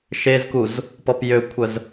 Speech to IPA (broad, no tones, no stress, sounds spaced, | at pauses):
ʃ e z k u z | p ɔ p j ø kʷʰ œ z